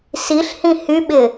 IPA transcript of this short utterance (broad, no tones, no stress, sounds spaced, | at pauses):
s i ɬ h ĩ h y ɓ ɪ